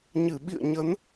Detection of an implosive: present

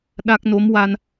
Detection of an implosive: present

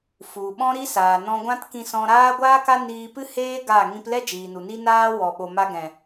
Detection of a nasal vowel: present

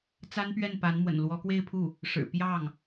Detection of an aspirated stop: present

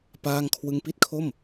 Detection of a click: absent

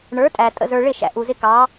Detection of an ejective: present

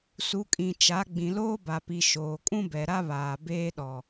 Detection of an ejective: present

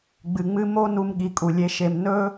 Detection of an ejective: present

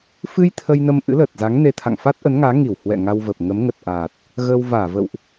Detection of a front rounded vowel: absent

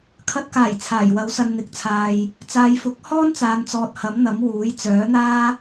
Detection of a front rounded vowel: present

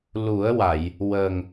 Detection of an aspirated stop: absent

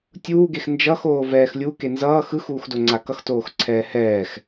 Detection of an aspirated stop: present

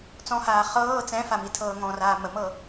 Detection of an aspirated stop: present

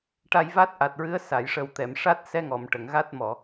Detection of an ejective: absent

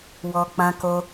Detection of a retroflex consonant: absent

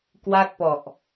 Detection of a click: absent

